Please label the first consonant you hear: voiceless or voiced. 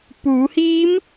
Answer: voiceless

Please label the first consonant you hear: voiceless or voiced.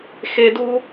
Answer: voiceless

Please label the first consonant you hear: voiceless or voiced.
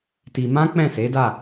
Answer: voiceless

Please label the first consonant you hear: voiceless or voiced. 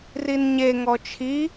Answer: voiced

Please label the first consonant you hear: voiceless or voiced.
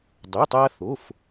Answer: voiced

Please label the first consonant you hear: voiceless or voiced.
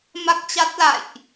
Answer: voiced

